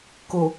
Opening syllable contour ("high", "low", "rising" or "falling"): low